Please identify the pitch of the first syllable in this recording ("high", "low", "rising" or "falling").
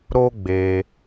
high